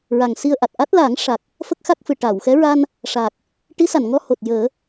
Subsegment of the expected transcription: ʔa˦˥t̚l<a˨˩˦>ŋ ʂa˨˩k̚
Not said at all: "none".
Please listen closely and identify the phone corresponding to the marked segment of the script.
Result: a˨˩˦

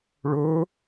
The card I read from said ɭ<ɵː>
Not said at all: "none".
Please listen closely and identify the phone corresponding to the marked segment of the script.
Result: ɵː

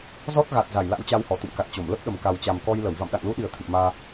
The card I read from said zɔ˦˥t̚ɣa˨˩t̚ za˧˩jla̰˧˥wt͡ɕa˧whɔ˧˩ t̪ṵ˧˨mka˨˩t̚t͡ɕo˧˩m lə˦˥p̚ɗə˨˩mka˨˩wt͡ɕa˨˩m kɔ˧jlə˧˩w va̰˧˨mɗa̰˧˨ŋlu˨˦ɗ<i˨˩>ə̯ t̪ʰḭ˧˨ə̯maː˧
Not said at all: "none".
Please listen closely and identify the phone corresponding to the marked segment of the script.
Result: i˨˩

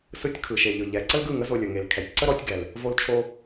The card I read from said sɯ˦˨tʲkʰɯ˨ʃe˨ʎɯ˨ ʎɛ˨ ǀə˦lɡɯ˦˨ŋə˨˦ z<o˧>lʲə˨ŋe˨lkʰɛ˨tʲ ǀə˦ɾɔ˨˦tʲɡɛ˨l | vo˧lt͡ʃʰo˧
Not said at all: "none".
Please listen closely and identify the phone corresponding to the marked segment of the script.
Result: o˧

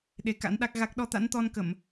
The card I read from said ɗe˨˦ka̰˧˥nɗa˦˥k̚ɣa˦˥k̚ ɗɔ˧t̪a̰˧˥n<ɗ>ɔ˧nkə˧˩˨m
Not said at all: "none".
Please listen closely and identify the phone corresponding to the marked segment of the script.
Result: t̪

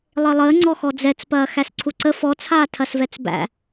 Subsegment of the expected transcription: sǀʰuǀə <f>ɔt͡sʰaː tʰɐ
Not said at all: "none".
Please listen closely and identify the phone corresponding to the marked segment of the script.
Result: f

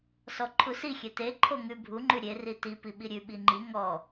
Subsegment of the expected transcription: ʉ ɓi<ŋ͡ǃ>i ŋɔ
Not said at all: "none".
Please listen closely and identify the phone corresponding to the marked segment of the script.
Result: ŋ͡ǃ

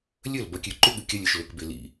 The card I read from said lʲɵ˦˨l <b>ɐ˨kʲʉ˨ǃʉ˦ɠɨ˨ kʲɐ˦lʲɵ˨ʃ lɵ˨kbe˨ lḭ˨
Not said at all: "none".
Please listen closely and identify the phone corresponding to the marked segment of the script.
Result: b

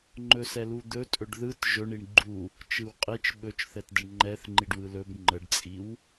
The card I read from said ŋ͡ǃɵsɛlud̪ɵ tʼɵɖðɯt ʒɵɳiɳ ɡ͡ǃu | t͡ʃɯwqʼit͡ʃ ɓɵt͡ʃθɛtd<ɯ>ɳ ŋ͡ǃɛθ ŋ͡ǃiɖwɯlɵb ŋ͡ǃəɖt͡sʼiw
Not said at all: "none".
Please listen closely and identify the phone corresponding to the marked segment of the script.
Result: ə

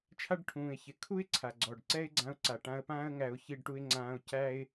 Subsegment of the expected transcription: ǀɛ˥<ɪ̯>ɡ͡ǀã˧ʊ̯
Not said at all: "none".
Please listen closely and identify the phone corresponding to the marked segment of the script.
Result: ɪ̯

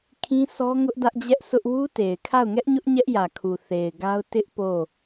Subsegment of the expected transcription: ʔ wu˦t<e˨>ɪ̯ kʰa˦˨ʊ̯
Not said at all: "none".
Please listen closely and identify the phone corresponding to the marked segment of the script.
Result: e˨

